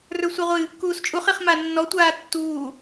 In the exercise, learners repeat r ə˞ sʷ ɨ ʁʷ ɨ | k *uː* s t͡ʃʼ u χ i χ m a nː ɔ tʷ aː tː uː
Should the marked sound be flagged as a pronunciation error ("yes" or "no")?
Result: no